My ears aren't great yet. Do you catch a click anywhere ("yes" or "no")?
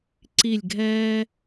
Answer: yes